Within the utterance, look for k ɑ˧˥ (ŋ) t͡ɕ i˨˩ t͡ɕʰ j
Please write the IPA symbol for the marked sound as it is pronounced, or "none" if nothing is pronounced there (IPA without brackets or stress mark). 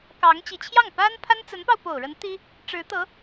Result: ŋ